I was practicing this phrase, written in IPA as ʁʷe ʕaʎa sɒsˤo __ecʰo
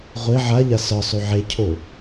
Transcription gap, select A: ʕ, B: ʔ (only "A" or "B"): A